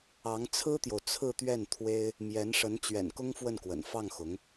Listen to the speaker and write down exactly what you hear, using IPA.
ɑ˧˥ŋt͡sʰɹ̩˥t̪jo˨ʊ̯ t͡sʰɹ̩˥˧t̪ɥɛ˥˩nt̪ʰwe˥ɪ̯ | mjɛ˧˥nʂə˧˥n t͡ɕɥɛ̰˨˩n kʊ˥ŋfwə˥˩nkwə̰˨˩n fɑ˥˩ŋxʊ˧˥ŋ

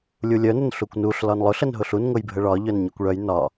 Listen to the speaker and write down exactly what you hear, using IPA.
lʲulʲœnʊn ɬukʷnuɬ lɒnlˠʊ ɬənɦʊɬun ŋʊjbʱəɭɒ ʎœnɲœkʷɭœj nɒ

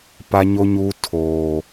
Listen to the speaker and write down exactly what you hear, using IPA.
pa˦ɲo˦ɲu˦ tʰoː˦

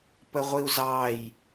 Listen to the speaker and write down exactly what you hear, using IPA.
pəʁʷiu̯zɑj

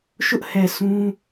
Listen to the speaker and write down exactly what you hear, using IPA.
ʃʊ˦ʔhɛ˨ sʰũ˦

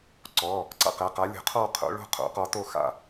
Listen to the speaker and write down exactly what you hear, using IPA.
ǀɔ˩˧˩ | ǀa̰˥˨qɛ˩˧˩ qa˨˥lʲo̤˨˥qʰɔ˥˨ qʰo̰˨˥ɭo̤˥˨ qʰo̰˨˥qɔ˨˥to˥˨xa̰˥˨

